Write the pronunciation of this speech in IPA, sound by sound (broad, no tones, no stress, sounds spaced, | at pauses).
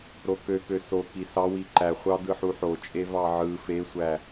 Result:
ɾ o k ø k ø s o k i s ɑ w i ǃ æ χʷ ɑ d ɯ ħ u ħ o t͡ʃʼ e v ɑ ʕ ɯ f e sʷ æ